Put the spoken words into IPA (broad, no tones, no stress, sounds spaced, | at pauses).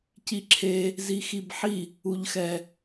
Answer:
c i ǁʰ e | z i x i b ħ i | u ʎ x ɛ